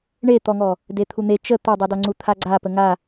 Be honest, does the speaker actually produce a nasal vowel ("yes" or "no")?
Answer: no